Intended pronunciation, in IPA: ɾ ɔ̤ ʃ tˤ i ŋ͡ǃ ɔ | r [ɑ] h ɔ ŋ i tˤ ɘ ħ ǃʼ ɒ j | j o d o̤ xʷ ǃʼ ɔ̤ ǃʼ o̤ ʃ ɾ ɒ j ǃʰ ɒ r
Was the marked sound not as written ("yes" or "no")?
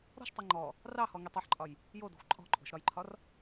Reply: no